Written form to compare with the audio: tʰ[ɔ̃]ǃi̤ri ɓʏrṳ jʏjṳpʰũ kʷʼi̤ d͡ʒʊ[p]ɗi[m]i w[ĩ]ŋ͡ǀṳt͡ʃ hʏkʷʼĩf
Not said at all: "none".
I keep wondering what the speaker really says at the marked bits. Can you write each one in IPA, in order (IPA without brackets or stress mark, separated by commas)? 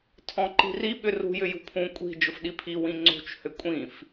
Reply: ɔ̃, f, pʰ, ĩ